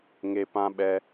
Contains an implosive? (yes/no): yes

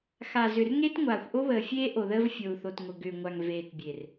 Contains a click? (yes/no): no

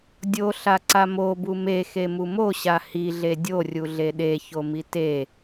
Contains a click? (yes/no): yes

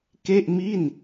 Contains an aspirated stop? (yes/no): no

